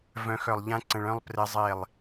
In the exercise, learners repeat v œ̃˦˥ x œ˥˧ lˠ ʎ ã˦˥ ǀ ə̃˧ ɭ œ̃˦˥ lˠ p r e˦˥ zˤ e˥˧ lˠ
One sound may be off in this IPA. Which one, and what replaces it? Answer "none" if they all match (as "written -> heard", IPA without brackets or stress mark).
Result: none